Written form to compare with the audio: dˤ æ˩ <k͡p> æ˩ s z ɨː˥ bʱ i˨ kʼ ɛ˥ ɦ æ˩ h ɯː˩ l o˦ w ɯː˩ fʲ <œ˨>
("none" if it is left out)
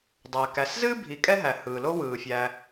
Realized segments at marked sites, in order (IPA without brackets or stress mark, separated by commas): k, æ˨